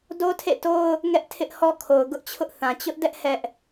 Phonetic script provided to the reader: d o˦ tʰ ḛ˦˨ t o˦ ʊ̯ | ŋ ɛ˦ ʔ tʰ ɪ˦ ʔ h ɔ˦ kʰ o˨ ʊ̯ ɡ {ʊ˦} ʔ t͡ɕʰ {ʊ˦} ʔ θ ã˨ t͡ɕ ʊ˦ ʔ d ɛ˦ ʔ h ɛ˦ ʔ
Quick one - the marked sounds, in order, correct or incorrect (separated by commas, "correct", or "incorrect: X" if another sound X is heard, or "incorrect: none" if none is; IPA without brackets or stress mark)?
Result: correct, correct